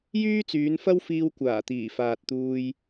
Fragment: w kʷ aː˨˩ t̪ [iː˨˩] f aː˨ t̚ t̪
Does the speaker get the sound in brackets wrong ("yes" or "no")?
no